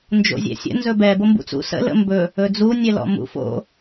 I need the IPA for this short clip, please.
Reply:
n d͡ʒ o̰ zʲ ɛ̰ sʲ ə̰ n z ɵ b ɛ b o m b ṵ t͡s ṵ s ə̰ l ə̰ m b ɵ | ɵ d͡z u nʲ ɛ l ɔ̰ m ṵ f o̰

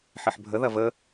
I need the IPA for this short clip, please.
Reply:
ħ ɪ ħ bʱ ə ð ɐ v ə

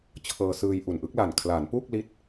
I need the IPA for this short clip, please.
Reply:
t͡ɕʰ ɤː˧ s ɯː˧ j ʔ u˨˩ n ʔ ɯ˦˥ k̚ l a˨˩ n kʰ l aː˩˦ n p u˥˩ k̚ l i˦˥ t̚

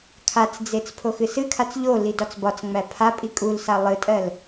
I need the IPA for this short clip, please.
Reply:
kʰ a t͡s d͡z e t͡s pʰ o x ɨ s ɨ kʰ a t͡s ʎ o l i d ɒ t͡s b ɒ t͡s ŋ͡m æ pʰ a pʼ i kʼ u l s a lˠ ɨ tʼ ɜ l

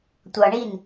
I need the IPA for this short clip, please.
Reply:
tʷ ʌ ɳ i n

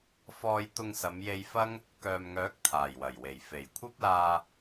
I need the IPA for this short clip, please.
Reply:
f ɔː˧ j t̪ ʊ˧ ŋ s ɐ˨˧ m j e˧ j f ɐ˥ ŋ | k œː˨ m ŋ œː˨˥ k̚ t̪ʰ aː˨˩ j w ɐ˨˩ j w e˨˩ j f e˨˩ j kʷʰ ɐ˥ p̚ l aː˧

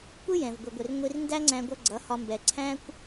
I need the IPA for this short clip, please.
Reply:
kʷ ɪ˦ j ɛ̃˨ v ɡʷ ɪ˨ ɡʷ ɪ˨ r ŋʷ i˧ r n d æ˦ ŋ͡ǀ æ̃˧ ɡʷ ʌ˧ ɡ͡ǀ ʌ˨˦ h ɒ˧ m b ɛ˨ ǀʰ æ̃˦ kʷ

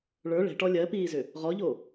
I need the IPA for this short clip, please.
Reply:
ɭ ə˞ ɭ ɛ̤ ʈ ɔ lʲ ɜ p iː z ʏ | ʁ ɔ ʎ o

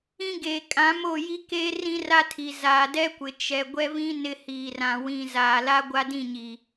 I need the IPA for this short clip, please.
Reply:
ĩ˦ ɡ eː˨ kʼ ã˨˦ m o˦˨ j i˦ k eː˦ r ĩ˦ r a˦ tʰ i˨ z aː˨ d ɛ˦ kʷ ɪ˨ t͡ʃ ɛ˨ ɡʷ ɛ˦ v ĩ˦ n ɪ˦ h iː˨ r ã˨ w ĩ˨ z aː˨ l a˦ ɡʷ a˦ d ĩ˦˨ ɲ i˨

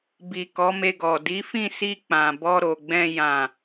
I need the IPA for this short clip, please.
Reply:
b i˨ k ɔ˨˦ m e˧ ɡ ɔ˨ d i˨˦ f ĩ˦˨ s i˧ k͡p ã˨ b ɔ˧ ɾ o˨ ɡ͡b ɛ̃˧ j ã˨

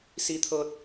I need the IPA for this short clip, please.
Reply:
s i˧ t̪ʰ ɤː˧ t̚

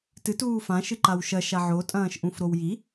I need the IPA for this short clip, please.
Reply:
t ɨ t uː f ã ʃ ɨ ǃ a w ʃ ɐ ʃ a ʕ o tʼ ɐ̃ː ʃ ʔ ũ f ɾ o w j i

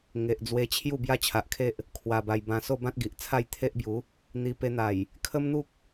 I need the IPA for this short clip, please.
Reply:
ŋ e˨ ʔ d͡z w e˧ t͡ɕʰ j u˥˧ b j a˦ t͡ɕʰ a˨ ʔ kʰ e˦ ʔ | kʰ w a˨˩ b a˨˩ j b ã˨˩ s o˥˧ b ã˦ t̚ ɡ i˨ ʔ t͡sʰ a˥˧ j t̪ʰ e˦ ʔ b j u˨˦ | n̪ i˧ p e˧ n̪ a˨˩ j | kʰ ə˦ m n̪ u˦ k̚

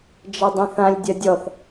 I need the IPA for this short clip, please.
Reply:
d͡ʒ ɐ dˤ ɐ̃ θ ã lʲ dʲ ɐ dʲ ɔ θ

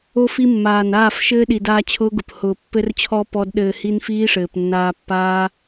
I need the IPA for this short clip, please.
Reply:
o˧ f i˧ mː aː˨ n aː˦˨ f ʃ ɘː˦ ɗ i˨ d aː˧ t͡ɕʰ ʊː˦ ɡ ʊ˨ p h ʊː˨ pː ɘ˧ r t͡ɕʰ ɔ˧ p ɔ˦ d ɗ ɘː˧ h i˦ n f iː˦ ʂ ɘː˨ p nː aː˧ pː aː˦

